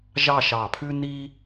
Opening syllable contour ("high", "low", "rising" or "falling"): falling